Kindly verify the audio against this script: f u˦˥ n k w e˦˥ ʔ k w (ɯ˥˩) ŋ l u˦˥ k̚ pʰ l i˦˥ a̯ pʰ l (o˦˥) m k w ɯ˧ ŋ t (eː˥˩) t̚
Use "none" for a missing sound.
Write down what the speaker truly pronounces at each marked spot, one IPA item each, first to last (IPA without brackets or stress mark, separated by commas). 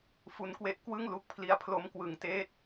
ɯ˥˩, o˦˥, eː˥˩